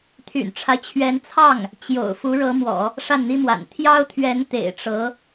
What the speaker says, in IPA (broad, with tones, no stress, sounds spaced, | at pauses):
t̪ʰ y̰˨˩ n ʈ͡ʂʰ a˦ ɪ̯ t͡ɕʰ ɥ ɛ˧˥ n t͡sʰ ɑ˥˩ ŋ | t͡ɕ j o̰˨˩ ʊ̯ f u˧˥ ɻ ɤ˧˥ m w ɔ̰˨˩˦ | ʂ a˥˩ n n̪ i˥ m w a̰˨˩ n t̪ʰ j ɑ˥ ʊ̯ t̪ʰ ɥ ɛ˧˥ n t̪ ḛ˨˩ ɪ̯ ʈ͡ʂ ɤ˧˥